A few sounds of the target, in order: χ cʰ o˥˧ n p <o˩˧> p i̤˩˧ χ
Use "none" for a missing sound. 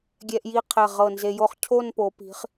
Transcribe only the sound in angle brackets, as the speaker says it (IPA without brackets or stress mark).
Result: o˩˧